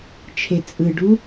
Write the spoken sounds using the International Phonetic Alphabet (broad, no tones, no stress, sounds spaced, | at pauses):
t͡ʃʰ e t͡sʼ ɯ ɖ u